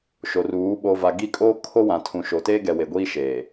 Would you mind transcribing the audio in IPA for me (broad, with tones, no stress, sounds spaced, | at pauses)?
ʃ o˨ r uː˨˦ ɓ o˨ v a˨ ɡ i˦˨ kʼ oː˦ kʰ o˦ w ã˨ tʰ ũ˨ ʃ oː˨ t eː˦ ɡ ɛ˨ w e˨ ɡʷ iː˦ ʃ eː˨